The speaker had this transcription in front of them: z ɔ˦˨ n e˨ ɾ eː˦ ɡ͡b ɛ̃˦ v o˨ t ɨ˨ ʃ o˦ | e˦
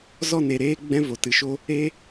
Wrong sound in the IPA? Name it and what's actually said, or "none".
none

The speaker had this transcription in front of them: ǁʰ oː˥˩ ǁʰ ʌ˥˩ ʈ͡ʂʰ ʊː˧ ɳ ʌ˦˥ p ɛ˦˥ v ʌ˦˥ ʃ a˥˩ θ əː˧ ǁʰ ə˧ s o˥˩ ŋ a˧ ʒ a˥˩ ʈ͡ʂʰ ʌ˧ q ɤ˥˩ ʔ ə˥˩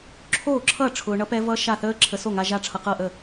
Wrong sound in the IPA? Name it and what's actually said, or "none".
əː˧ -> əː˦˥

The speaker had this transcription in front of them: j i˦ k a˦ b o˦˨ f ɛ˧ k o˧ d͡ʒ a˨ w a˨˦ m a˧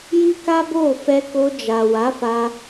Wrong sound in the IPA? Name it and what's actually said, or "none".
m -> f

